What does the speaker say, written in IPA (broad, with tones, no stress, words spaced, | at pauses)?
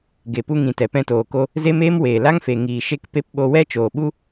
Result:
ɡe˨pu˧ŋĩ˨ tɛ˨pɛ̃˧toː˨ko˧ | ze˦meː˦m weː˨la˦ŋfe˨ ŋiː˨ ʃe˦kpe˦p ɓo˧wɛ˦ t͡ʃoː˨ɓu˦